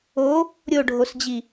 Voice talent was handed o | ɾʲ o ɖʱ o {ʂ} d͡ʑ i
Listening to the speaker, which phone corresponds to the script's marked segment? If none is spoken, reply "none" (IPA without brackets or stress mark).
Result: s